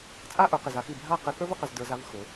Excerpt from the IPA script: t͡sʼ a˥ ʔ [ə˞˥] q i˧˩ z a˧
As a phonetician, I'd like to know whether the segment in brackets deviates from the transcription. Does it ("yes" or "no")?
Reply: yes